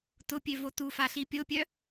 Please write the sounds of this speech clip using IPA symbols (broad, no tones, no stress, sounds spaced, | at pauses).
t ʊ pʲ ø v o t u f a ɬ i pʲ o pʲ œ